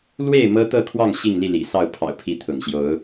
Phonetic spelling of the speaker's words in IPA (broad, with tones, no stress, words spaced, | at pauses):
lwe˥˨ɪ̯ mɤ˦t̪ɤ˥˨kʰwɑ˥˨ŋ ɕi˥˨ŋli˥˨lḭ˨˩sɑ˥˨ʊ̯ pʰɑ̰˨˩ʊ̯pʰi˨˦t̪ʰʊ̰˨˩ŋɕjo˨˦ʊ̯